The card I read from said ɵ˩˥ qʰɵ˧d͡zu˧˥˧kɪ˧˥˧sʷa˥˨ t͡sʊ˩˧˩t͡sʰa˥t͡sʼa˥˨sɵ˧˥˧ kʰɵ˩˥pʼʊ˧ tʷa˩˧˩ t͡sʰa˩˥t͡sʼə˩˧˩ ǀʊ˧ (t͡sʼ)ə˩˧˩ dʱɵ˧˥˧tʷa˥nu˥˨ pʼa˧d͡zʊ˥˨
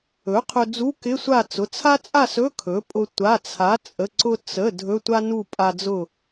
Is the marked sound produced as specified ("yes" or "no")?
no